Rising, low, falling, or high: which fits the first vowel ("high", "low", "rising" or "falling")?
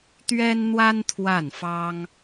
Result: high